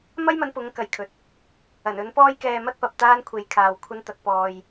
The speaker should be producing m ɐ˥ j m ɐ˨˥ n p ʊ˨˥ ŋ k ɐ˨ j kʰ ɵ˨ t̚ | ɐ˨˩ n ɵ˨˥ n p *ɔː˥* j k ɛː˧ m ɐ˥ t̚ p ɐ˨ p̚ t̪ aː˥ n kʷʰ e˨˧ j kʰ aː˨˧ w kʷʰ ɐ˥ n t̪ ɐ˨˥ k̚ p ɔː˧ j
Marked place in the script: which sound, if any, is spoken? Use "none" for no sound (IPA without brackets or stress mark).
ɔː˥